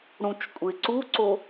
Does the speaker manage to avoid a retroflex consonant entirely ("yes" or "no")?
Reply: no